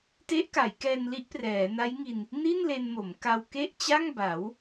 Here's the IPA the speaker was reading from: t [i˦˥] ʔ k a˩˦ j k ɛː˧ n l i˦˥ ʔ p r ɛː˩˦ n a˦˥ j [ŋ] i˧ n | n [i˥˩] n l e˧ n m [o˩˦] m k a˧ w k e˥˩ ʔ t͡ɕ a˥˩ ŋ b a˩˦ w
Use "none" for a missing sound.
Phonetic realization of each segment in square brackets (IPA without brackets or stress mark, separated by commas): e˦˥, ŋ, i˥˩, o˩˦